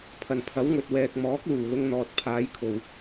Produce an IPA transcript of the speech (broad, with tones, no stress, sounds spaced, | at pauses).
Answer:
pʰ ɐ˨˩ n pʰ ɐ˨˥ w ŋ ɵ˨ t̚ w ɛː˨ k̚ m ɔː˨˥ k̚ l uː˨˩ l ʊ˧ ŋ n̪ ɔː˨ t̚ pʰ aː˨˧ j kʰ o˨ w